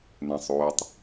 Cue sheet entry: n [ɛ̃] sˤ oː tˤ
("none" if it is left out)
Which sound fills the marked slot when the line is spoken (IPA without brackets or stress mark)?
ɛ̃